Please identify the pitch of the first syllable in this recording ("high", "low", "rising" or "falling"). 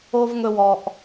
low